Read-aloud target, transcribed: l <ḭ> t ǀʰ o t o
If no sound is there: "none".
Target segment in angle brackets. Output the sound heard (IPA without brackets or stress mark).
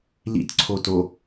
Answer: ḭ